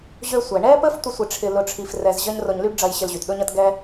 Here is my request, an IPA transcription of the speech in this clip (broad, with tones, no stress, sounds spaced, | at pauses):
ʑ ø˧ sʷ ɛ˩ ɳ ɛ˥ p ə˥ f tʷ ə˥ sʷ ɪ˧ ʈ͡ʂʰ ɪ˧ l ʊ˧ ʈ͡ʂʰ i˧ f r ɛ˧ z ʑ ɐ˥ ɲ r o˧ ɲ l y˥ ɖ ɖ͡ʐ ɐ˧ j ɕ ɪ˧ l ʑ y˩ t ɗ ʊ˥ ɲ ɐ˥ t ɡ ɛ˥